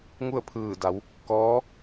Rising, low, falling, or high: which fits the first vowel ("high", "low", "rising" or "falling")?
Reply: falling